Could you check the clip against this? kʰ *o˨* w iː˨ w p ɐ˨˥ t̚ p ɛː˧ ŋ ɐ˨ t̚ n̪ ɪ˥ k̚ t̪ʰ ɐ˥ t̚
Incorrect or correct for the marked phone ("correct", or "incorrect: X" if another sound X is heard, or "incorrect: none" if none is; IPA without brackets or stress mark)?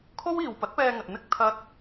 incorrect: o˥